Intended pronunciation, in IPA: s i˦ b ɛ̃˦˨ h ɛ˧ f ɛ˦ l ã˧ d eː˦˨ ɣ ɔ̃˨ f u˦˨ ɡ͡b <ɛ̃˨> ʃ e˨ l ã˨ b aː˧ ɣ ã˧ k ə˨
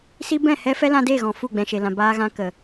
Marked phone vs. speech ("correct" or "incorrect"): correct